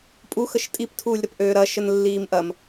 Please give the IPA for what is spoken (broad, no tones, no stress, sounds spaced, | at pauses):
pʼ u x ə ʃ tʼ i p tʰ uː lʲ ɾ ɐ p ʔ øː ɾ ɐ ʃ ə n lː iː m ʔ ɐ m